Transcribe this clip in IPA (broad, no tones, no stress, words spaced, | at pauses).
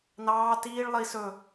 nɑː tiːɭ lˠi sɵ